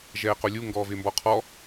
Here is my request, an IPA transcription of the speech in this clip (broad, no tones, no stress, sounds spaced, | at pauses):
ʒ ɛː q o lʲ u ŋ ɡ ɔː v ɪː m b ɔ qʰ ɔ